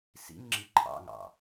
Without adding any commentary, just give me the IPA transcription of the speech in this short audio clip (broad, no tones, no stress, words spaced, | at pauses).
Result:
sḭŋŋ͡ǁi ǃʰɑ̰ŋɑ̰